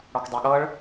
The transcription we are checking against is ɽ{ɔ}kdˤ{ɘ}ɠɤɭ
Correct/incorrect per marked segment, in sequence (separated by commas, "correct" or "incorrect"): correct, incorrect